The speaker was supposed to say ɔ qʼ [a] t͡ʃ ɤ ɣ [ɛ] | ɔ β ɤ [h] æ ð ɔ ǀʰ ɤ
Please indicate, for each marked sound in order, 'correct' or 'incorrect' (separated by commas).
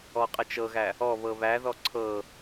incorrect, incorrect, incorrect